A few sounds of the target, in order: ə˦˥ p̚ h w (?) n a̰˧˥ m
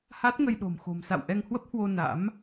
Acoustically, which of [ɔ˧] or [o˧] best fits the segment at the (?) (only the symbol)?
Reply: o˧